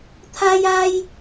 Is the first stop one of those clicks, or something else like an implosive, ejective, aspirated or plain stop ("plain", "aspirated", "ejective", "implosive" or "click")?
aspirated